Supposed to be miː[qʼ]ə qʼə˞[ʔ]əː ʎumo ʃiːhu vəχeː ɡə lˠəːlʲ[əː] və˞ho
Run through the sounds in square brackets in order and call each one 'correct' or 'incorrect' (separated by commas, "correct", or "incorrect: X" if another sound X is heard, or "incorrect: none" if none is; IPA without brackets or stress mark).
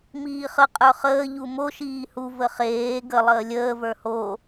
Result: incorrect: χ, incorrect: χ, correct